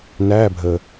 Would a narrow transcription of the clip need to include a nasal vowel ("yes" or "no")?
no